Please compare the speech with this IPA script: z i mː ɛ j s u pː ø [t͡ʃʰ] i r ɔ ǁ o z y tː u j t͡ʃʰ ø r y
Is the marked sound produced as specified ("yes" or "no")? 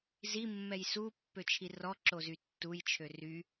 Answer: yes